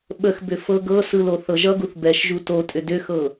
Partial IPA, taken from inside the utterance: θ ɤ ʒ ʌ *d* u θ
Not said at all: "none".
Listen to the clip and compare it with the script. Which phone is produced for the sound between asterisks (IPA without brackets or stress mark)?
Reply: ɡ